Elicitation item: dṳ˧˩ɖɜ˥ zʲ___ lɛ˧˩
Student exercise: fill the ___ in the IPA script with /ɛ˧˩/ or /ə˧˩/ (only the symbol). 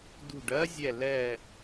ɛ˧˩